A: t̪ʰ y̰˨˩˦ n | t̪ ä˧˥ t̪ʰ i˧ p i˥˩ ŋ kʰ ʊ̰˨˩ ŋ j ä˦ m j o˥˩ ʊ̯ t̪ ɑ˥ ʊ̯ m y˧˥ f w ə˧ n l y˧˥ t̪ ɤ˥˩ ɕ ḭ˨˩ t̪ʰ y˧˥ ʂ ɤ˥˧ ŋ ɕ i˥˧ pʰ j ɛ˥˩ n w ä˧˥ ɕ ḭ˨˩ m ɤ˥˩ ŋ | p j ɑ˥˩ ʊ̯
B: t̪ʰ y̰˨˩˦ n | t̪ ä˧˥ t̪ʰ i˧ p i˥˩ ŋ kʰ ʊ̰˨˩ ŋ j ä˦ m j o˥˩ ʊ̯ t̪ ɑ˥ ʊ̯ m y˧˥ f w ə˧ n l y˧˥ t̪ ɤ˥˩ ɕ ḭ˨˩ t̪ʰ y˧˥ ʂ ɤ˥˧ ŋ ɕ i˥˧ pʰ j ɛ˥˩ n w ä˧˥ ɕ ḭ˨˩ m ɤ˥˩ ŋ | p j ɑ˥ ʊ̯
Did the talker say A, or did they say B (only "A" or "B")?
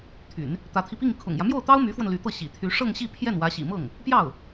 A